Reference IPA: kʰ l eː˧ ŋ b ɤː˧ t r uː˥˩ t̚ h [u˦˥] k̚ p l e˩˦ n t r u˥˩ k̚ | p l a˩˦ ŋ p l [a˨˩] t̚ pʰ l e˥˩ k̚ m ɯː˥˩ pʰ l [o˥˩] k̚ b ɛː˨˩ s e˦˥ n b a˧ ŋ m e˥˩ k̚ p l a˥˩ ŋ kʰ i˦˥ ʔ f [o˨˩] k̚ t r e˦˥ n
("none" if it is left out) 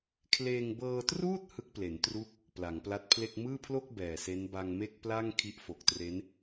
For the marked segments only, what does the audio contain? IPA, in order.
ɯ˦˥, a˦˥, o˥˩, o˨˩

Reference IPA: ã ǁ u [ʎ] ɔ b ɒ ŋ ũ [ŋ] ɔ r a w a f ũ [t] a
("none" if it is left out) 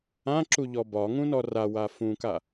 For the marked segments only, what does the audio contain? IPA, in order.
ʎ, n, k

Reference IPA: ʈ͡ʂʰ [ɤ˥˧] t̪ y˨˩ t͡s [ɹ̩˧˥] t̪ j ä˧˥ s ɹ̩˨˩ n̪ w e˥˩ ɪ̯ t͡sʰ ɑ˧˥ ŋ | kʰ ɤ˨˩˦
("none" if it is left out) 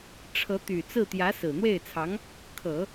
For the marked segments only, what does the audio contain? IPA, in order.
ɤ˧˥, ɹ̩˥˩

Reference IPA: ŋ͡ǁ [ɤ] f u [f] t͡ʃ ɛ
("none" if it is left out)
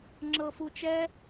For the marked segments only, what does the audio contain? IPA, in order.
ɤ, none

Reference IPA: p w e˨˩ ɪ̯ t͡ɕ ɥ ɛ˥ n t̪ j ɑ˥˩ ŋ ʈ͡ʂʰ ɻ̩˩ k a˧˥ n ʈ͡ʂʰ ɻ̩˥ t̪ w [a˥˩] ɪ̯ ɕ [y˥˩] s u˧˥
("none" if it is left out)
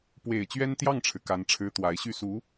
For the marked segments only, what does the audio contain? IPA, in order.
a˧˥, y˥˩

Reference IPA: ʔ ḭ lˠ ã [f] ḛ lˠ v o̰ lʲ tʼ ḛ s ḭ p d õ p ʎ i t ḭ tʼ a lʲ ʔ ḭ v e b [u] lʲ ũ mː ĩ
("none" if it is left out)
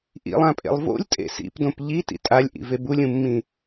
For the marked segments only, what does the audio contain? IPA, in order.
pʼ, u

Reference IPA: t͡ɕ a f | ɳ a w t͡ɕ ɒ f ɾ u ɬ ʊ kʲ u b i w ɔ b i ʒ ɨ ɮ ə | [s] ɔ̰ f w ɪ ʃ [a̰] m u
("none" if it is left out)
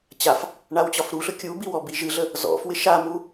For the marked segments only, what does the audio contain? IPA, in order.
z, a

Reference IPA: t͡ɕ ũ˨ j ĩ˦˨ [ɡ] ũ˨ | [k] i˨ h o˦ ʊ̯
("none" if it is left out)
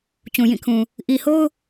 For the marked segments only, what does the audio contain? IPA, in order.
kʰ, ʔ

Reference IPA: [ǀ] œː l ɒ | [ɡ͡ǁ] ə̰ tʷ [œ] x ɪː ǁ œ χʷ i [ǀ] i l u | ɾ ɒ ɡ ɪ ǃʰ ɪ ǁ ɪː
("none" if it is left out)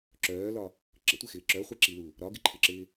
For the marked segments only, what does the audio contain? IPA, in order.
ǁ, ǁ, ɛ, ǁ

